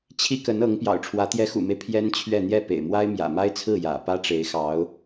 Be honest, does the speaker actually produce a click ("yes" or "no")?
no